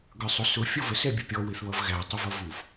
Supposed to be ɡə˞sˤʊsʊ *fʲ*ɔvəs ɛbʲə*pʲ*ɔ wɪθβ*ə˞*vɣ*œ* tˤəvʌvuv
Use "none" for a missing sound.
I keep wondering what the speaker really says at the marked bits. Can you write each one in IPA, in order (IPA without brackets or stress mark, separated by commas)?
fʲ, pʲ, ʌ, æ